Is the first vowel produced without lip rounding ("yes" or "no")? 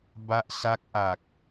yes